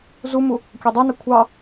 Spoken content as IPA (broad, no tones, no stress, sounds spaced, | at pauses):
z u m u | kʲ ɑ dˤ ə˞ n a kʷʰ ɑ